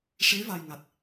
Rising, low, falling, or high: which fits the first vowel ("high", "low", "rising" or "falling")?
rising